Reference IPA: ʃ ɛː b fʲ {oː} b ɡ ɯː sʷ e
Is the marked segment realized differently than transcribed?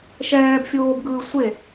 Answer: no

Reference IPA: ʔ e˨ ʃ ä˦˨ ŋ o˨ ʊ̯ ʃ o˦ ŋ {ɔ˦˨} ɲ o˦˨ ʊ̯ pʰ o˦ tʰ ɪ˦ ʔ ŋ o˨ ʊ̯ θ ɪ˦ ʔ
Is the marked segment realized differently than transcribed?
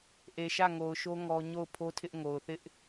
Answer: yes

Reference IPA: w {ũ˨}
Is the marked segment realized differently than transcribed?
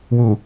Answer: yes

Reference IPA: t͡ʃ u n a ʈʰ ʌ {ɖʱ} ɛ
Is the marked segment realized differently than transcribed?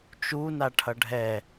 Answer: no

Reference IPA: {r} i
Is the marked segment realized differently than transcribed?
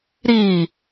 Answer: yes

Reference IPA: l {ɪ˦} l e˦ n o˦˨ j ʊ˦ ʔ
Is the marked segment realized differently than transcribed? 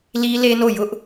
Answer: yes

